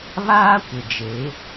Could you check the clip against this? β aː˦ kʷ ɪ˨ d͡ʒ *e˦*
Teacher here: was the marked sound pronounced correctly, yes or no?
no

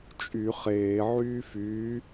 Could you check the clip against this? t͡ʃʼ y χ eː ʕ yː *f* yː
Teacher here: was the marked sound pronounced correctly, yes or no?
yes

